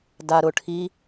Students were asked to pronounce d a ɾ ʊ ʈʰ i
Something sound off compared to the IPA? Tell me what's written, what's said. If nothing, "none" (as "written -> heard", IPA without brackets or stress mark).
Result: none